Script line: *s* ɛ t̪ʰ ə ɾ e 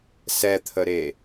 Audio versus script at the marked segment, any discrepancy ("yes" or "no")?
no